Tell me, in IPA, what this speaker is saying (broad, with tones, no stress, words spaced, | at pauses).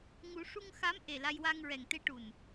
ŋu˨˩˦ʂu˧ŋ xa˧˥m ʔe˨˩la˧jwa˧ŋɹɛ˨˩ŋ t̪e˧ʈu˨˩n